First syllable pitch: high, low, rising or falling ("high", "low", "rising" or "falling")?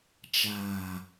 low